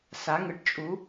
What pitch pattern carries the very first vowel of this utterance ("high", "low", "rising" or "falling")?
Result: rising